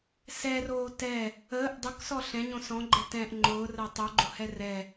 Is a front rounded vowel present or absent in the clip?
absent